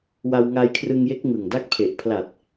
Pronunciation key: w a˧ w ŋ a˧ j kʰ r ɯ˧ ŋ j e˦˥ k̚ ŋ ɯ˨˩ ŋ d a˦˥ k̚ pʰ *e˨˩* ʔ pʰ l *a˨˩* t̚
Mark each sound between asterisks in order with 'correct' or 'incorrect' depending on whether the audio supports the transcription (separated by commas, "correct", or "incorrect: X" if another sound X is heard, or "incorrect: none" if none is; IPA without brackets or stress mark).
correct, correct